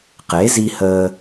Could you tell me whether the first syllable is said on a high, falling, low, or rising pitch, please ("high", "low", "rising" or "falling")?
rising